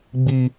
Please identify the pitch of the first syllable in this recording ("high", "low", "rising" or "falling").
high